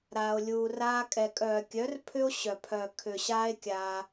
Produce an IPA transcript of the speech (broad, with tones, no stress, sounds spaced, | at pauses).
ɾ aː˧ o̯ lʲ uː˧ r aː˦ kʼ ɛ˨ kʼ œː˨ kʲ œ˨˦ r pʰ ʏ˦ o̯ ɕ œ˨ pʰ œ˨ kʰ ʏ˨ ɕ aː˦ e̯ kʲ aː˧